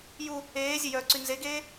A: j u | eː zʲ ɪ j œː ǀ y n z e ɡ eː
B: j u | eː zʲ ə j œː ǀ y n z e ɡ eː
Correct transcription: B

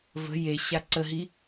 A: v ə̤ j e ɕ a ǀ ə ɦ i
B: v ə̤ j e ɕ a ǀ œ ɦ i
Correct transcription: A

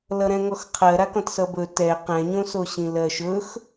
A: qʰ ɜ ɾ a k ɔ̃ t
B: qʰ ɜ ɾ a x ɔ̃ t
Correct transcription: A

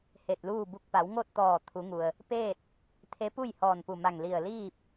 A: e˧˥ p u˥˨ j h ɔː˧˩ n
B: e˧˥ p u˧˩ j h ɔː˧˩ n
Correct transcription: A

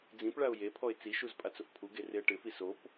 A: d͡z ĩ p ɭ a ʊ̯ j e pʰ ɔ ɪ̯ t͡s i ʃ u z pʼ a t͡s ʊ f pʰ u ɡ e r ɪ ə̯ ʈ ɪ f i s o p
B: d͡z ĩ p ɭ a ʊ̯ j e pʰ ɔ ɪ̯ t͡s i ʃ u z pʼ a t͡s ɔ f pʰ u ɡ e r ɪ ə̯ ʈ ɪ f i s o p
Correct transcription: A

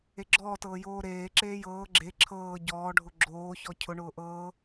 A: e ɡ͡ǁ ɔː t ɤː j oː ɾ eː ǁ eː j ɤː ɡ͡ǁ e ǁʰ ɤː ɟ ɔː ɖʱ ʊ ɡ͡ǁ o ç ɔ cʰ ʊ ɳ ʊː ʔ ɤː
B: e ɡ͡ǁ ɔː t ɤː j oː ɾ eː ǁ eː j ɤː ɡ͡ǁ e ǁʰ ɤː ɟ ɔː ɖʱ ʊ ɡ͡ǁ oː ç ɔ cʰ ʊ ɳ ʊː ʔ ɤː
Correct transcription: B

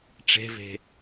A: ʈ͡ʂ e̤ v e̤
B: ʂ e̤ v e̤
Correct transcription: A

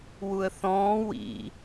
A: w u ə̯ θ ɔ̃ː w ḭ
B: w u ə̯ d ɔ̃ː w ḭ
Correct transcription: A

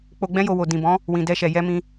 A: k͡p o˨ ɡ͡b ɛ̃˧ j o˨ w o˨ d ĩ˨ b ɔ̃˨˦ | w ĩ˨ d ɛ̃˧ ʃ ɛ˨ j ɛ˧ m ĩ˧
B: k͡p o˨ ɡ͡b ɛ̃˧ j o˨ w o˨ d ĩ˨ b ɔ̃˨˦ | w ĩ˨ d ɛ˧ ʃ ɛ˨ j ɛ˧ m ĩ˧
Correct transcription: B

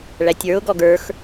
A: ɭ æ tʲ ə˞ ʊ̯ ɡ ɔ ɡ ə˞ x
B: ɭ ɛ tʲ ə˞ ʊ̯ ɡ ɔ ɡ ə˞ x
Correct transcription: A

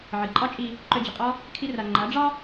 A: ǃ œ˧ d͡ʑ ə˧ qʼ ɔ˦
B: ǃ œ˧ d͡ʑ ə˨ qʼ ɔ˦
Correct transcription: B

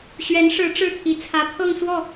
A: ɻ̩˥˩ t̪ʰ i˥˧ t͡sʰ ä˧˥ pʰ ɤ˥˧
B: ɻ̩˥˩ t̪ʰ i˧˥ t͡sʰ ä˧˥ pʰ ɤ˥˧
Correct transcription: B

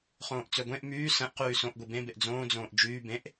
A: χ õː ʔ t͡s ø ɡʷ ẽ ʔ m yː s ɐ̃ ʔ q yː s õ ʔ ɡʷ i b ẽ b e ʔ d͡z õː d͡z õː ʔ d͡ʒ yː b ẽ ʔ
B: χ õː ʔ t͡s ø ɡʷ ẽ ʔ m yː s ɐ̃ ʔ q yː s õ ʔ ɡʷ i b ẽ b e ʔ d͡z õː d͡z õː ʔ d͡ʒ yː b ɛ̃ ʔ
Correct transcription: A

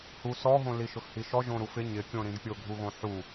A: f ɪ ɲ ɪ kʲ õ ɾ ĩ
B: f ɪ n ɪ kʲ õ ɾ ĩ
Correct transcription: A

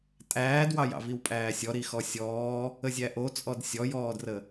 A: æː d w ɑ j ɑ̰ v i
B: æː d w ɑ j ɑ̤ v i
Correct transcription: A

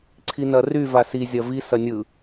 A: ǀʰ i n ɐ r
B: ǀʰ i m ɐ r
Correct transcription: A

